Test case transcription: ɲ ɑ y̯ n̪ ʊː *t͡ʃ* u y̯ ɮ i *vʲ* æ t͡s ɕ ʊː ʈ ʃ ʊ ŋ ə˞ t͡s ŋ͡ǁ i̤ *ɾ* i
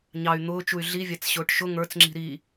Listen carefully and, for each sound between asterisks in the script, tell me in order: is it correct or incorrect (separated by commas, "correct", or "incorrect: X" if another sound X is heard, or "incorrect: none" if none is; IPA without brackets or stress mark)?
correct, correct, correct